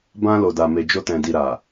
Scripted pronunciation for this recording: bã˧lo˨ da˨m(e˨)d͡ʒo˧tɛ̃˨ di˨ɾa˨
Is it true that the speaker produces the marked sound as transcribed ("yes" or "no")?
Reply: yes